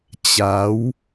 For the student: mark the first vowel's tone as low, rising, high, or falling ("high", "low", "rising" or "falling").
rising